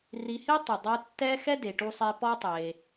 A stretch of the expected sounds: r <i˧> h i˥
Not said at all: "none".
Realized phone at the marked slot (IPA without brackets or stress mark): i˧